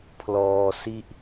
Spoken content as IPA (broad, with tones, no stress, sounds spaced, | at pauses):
pʰ l ɔː˧ s i˥˩ ʔ